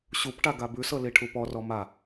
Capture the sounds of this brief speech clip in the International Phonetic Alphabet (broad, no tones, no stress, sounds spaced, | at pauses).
ɕ u p ʈ a ɡ a b ʉ s ɤ l i ʈʰ u p ɔ r ɔ m a